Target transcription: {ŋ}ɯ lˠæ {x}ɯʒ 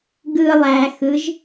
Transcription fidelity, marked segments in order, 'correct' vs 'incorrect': incorrect: ɡ, correct

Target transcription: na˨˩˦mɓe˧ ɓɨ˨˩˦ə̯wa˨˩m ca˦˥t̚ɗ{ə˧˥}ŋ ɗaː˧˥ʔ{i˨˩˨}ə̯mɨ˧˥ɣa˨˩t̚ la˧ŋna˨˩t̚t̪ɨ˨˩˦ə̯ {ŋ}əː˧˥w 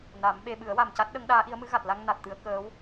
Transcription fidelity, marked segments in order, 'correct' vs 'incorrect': correct, incorrect: i˧˥, incorrect: k

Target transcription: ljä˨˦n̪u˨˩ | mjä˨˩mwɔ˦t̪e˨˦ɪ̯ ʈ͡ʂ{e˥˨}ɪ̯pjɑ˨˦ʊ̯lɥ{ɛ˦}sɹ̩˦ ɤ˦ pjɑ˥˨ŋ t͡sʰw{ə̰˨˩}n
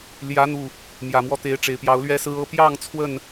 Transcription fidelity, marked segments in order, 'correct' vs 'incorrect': incorrect: e˨˩, correct, incorrect: ə˥˨

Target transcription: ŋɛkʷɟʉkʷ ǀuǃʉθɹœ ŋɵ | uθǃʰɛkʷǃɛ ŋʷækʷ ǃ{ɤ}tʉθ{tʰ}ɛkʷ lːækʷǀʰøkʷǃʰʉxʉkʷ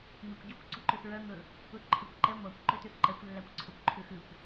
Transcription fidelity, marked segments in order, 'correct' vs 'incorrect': incorrect: ɵ, incorrect: ǃ

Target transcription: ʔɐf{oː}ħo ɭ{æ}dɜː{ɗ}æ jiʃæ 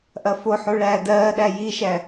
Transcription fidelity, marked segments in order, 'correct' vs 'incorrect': incorrect: o, incorrect: æː, correct

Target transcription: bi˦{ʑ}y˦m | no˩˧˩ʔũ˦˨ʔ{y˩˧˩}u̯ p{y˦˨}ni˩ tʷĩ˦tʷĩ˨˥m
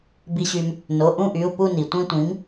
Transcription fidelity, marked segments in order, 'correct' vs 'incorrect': incorrect: ɕ, correct, incorrect: u˦˨

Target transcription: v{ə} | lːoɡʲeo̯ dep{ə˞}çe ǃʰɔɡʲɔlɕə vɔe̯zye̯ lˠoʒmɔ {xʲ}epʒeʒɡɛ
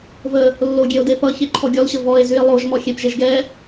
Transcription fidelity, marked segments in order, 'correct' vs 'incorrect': correct, incorrect: ʌ, correct

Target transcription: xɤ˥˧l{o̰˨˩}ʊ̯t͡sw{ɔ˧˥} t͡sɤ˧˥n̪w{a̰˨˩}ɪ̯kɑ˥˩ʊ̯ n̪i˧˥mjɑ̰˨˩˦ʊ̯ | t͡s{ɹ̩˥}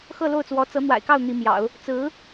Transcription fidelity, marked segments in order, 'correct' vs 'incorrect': incorrect: o˥˩, correct, correct, incorrect: ɹ̩˧˥

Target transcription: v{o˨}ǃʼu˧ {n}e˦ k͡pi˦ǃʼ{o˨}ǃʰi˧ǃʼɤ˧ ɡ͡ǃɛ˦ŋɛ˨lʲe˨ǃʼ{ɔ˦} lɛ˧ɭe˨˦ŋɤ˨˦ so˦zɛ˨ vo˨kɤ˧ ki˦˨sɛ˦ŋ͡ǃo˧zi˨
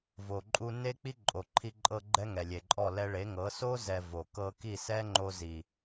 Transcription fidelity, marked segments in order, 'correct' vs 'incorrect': correct, correct, correct, incorrect: ɔ˦˨

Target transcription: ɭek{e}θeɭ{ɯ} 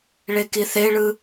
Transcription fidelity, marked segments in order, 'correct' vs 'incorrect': incorrect: i, correct

